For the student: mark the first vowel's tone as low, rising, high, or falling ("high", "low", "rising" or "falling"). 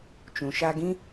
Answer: low